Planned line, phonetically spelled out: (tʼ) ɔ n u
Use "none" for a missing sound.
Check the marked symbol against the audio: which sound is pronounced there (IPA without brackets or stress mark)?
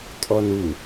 tʼ